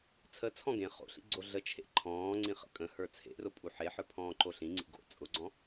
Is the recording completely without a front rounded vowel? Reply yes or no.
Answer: yes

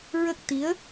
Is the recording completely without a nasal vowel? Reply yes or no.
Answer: yes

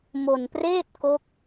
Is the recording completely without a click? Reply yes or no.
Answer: yes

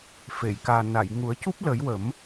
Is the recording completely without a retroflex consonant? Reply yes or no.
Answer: yes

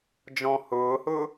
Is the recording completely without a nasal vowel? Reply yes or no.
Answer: no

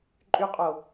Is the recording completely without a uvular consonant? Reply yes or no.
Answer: no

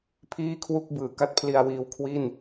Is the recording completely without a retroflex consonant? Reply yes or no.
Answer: yes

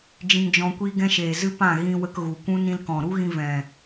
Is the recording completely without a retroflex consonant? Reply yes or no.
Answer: yes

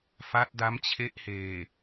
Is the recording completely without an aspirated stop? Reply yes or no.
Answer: no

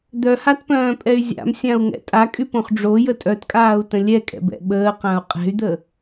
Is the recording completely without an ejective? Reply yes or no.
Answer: no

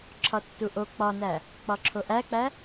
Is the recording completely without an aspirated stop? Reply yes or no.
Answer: no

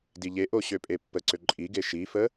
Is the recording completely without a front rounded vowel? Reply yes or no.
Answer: no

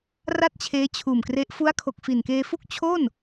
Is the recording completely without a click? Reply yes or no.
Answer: yes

